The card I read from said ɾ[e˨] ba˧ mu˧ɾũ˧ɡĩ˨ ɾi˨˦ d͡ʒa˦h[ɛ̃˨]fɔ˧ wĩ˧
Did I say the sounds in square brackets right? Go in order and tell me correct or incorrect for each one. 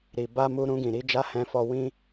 incorrect: i˨, incorrect: ɛ̃˧

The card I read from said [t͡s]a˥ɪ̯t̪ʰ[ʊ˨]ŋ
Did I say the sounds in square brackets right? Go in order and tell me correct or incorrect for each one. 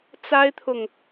correct, correct

